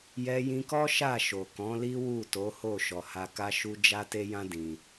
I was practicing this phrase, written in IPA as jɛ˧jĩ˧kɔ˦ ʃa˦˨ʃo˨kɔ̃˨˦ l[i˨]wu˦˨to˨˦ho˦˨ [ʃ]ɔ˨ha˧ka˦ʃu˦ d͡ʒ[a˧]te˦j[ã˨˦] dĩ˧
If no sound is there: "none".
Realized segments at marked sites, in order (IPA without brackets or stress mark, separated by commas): i˦, ʃ, a˦, ã˦